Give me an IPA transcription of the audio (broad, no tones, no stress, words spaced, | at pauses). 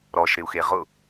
ɾɔʃɾɪu̯xe ʁʊ